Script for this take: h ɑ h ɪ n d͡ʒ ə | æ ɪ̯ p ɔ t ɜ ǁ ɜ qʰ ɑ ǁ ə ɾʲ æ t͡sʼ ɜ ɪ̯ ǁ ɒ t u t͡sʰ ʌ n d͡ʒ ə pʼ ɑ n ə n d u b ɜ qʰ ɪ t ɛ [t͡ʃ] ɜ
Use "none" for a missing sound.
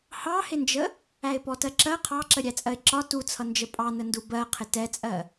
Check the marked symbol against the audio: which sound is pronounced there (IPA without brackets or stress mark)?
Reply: t͡sʼ